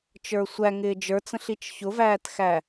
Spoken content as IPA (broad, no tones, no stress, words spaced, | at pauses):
t͡ʃə˞sʷæŋɪː d͡ʒə˞t͡sə̃ɬit͡ʃ çʊvæːtxæ